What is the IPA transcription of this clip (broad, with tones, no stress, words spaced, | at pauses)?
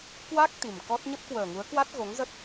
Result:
kwa˦˥k̚ t̪i˨˩mkɔ˦˥t̚ ɲə˦˥p̚kwəː˨˩ŋu˨˦ə̯kwa˦˥t̚ ɣo˨˦ŋzə˦˥t̚